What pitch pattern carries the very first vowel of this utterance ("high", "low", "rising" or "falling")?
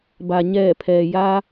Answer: low